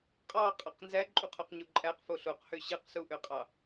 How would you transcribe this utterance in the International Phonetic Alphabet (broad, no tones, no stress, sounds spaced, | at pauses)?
qʼ ɑ qʼ ɑ q n z æ ǃʼ u qʰ u q ɲ u ǃʼ æ q f o ɬ o q h ø ɕ ɯ q s u ʔ ø qʼ ɑ